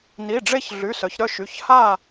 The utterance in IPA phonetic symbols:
ni˩˧˩ɖ͡ʐe˦˨ç ɮy˩˧˩sœ˩˧çɾœ˦˨ ʃy˩˧˩ç ha˦˨

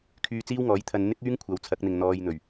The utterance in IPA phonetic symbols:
kʰyː˧ t͡siː˥wŋɔː˨˥jt̪ʰɐ˧n n̪ɪ˥k̚ yː˥ŋkʷʰɐ˨˧wt͡sʰɐ˨˥k̚n̪ɪ˨ŋ n̪ɔː˧jn̪ɵ˨˩ɥ

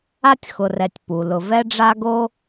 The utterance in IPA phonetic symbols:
a˥tʲxʊ˨rɛ˨tʲ pu˩lʊ˨ vɛ˦ɖ͡ʐa˦ɡo˦

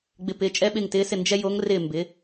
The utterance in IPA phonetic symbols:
ɡ͡bɪ˨pɪː˩˥ t͡ʃʼɛ˥ɓɪː˥˨ŋtɪː˧˥sɪ˥˨ nd͡ʒɛ˥jo˧˥ŋ rɪː˥˨mbɪ˩˥

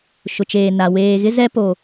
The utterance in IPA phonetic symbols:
ʃʊ˨t͡ʃeː˨ na˨ weː˨ɣɪ˦ zɛ˦ po˨

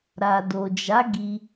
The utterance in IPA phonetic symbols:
ɾa˨do˨d͡ʒa˨˦ ɡi˧

